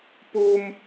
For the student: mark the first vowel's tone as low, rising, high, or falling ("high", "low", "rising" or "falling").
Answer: high